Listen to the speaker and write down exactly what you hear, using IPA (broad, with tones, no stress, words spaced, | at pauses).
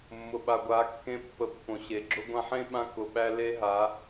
mːʊ˨ɓa˨ɡʷa˨˦kːẽ˧ pːə˧pːõ˨ɕe˨ ɡ͡ǁʊ˧ɡʷã˧ħẽ˦ɓã˧ kʊ˨ɓæ˧ le˦ɦa˨˦